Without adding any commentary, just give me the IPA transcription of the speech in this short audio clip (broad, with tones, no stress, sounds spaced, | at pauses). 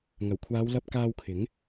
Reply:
ŋ ɐ˨˩ w kʷʰ aː˨˧ w l ɐ˧ p̚ k aː˧ w kʰ ɪ˨˥ ŋ